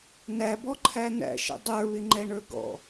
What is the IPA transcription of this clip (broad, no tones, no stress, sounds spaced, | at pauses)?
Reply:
n æ b ɔ ǃʰ æ n æ̰ ʃ ə̰ dˤ ə˞ β ɪ ŋ͡ǃ ɛ ɳ ə˞ ɡ ɔ̰